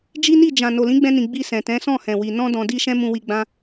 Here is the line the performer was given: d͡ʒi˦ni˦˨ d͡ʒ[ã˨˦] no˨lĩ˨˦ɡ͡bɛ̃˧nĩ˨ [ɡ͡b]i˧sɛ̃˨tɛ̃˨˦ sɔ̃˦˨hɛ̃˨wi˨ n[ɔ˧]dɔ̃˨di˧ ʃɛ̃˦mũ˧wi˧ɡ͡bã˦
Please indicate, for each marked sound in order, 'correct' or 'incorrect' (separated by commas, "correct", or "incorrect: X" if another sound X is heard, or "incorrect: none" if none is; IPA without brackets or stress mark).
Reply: incorrect: ã˨, correct, incorrect: ɔ̃˧